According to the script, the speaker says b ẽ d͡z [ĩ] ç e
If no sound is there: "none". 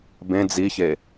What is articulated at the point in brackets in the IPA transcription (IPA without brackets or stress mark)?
i